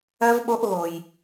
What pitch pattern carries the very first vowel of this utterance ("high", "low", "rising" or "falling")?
high